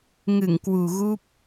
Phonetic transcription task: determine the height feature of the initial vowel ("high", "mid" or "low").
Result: high